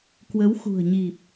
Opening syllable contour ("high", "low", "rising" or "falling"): rising